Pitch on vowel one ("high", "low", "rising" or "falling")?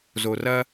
low